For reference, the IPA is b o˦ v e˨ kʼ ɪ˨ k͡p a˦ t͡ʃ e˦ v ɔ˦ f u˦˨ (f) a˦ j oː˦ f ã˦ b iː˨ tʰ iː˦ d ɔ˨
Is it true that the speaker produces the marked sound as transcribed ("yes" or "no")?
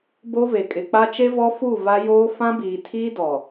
no